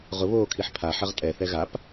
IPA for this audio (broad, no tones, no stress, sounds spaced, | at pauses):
ʁ ʊ β oː kʰ i ħ pʰ a ħ ɐ ʁ tʼ ɛ θ ɛ ɣ a p